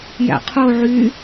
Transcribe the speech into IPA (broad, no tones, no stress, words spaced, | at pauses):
jæ̰qʰo ʕy